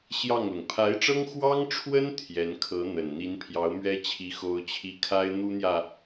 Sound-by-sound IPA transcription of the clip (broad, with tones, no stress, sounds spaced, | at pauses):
ɕ j ɑ˥˩ ŋ l ʊ˩ ŋ pʰ a˧˥ ɪ̯ ʈ͡ʂ ɤ˥ ŋ x w ɑ˥ ŋ ʈ͡ʂʰ w ə˥ n t̪ʰ j ɛ˧˥ n kʰ ɤ˧˥ n̪ ə˨˩ n n̪ i˧˥ n pʰ j ɑ˧˥ ʊ̯ m ɥ ɛ˥ t͡ɕʰ i˧˥ x o˥ ʊ̯ t͡ɕʰ i˥ kʰ a˥ ɪ̯ n̪ u˥ n̪ j ä˨